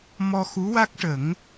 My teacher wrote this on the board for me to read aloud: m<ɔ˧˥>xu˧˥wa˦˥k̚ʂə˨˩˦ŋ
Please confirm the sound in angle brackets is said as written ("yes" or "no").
no